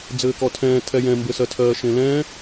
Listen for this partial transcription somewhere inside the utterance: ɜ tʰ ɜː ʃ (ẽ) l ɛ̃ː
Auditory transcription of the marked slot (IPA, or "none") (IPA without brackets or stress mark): ẽ